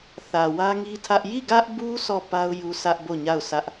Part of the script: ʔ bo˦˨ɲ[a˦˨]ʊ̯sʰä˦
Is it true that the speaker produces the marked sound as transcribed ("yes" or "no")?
yes